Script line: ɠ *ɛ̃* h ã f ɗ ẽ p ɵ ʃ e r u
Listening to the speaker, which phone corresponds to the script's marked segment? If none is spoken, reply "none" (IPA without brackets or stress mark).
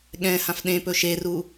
ɛ̃